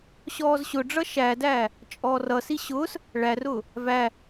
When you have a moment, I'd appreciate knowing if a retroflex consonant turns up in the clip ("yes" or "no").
yes